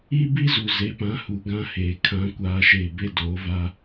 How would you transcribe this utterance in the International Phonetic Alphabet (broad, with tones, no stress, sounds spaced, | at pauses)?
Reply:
iː˦ b i˦ z u˨ z e˨˦ p ã˨˦ h u˨ ɡ ã˦ h eː˨ kʰ ã˦ kʷ aː˦ ʃ e˦˨ b e˦ d oː˨˦ v aː˦